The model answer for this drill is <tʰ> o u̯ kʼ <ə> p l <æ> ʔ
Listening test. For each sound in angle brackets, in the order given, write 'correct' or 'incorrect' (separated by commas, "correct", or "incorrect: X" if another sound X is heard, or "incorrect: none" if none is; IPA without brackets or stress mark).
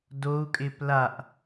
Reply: incorrect: d, incorrect: ɪ, incorrect: a